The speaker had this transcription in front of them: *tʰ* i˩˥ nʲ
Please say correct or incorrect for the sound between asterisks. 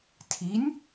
correct